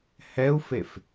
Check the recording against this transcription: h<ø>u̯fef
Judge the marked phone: incorrect: ɛ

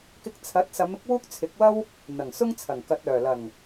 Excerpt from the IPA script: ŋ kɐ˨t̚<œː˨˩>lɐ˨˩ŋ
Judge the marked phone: correct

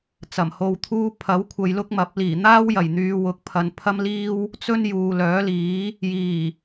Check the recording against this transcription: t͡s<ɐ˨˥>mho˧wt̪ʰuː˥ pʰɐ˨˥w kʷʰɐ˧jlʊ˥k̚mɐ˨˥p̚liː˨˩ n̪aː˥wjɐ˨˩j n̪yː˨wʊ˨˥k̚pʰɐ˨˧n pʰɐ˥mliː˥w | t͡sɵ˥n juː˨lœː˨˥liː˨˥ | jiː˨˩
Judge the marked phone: incorrect: ɐ˨˩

